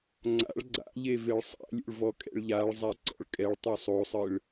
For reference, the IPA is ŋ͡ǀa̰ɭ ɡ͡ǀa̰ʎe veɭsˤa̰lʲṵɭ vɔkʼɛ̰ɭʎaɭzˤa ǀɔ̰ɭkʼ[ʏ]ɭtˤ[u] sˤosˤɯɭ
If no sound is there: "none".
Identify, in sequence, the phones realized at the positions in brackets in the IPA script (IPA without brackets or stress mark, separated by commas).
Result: ɛ, u